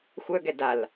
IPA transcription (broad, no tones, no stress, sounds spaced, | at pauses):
xʷ œ ɡ ɛ d a l